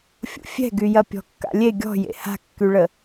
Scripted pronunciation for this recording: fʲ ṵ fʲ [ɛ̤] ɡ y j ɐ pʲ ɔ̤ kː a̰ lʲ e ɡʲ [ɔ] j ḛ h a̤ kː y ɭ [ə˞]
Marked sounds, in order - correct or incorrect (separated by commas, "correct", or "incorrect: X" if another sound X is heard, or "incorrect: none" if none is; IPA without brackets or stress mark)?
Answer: correct, incorrect: ɔ̤, incorrect: ə